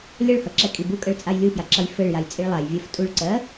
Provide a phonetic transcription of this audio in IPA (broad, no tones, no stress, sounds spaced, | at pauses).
lʲ ʌ ɭ h ʌ ǁ ɛ kʼ i b u kʼ ɜ ɭ t͡sʼ a j lʲ u f j a ǁ ʌ j f ɘ ɭ j a j t͡sʼ i ɭ lˠ a j vʲ ɜ f tʼ u ɭ ǀ ɜ